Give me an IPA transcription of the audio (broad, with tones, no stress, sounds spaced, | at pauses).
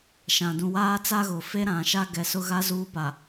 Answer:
ʃ ã˨ d ũ˨ w aː˦ t͡s a˦ ɣ ʊ˨ f e˦ ɾ ã˨ ʃ a˦ ɡ ɛ˨ s ʊ˦ ɣ a˦ z uː˦ p a˨